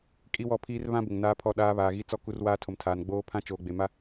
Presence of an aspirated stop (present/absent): present